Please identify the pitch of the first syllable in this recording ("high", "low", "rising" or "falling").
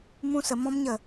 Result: high